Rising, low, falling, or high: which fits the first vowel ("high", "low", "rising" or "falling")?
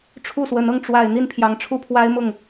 falling